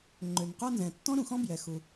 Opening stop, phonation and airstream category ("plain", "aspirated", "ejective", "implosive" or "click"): click